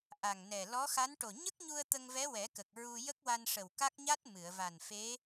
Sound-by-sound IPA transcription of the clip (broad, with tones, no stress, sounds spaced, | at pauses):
ʔ a˨˩ ŋ n ɛ˨˩ l ɔ˧˥ x a˧˥ n ʈ o˨˩ ɲ ə˦˥ k̚ ɲ u˧ ə̯ t̪ ə˧ ŋ v ɛ˧˥ w ɛ˨˩˦ k ə˨˩ k̚ ɹ u˧ j ə˦˥ k̚ w a˧ n ʂ ə˨˩ w k a˦˥ k̚ ɲ a˦˥ t̚ m ɨ˨˩˨ ə̯ v a˨˩ n f e˧˥